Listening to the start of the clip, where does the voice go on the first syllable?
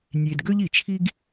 low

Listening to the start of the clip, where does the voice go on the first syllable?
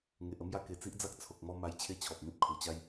low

